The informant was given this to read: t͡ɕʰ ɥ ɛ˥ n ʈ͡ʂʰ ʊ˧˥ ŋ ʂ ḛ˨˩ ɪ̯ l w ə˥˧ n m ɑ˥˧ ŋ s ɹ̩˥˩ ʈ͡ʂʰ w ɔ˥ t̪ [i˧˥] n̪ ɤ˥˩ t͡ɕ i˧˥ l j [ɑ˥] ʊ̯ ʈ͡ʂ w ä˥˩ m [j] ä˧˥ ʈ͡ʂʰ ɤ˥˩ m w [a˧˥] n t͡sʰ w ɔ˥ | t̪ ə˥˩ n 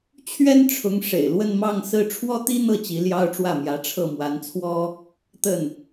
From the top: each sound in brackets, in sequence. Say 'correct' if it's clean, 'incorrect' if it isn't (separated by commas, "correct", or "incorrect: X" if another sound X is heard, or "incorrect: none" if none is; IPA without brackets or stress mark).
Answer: incorrect: i˥, correct, correct, correct